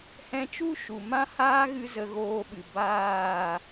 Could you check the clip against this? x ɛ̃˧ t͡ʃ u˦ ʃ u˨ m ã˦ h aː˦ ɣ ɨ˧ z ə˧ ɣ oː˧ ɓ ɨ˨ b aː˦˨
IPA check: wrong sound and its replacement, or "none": x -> h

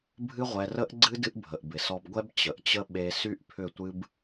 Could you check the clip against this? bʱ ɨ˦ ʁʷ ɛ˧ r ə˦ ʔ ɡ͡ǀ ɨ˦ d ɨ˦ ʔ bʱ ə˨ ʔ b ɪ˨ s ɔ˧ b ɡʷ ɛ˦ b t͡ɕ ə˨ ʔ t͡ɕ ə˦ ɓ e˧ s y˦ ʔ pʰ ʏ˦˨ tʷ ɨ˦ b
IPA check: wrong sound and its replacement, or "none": none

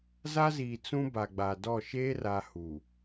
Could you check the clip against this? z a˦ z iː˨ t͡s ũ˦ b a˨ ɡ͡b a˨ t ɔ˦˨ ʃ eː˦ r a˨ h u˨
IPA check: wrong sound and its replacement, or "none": t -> d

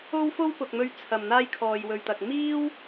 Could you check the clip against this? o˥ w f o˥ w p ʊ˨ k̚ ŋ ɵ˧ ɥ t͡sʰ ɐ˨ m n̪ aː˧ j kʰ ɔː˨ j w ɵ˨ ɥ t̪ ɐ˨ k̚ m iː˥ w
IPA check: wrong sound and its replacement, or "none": ŋ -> m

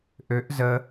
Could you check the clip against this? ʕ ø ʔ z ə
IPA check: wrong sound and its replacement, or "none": ʕ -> ʔ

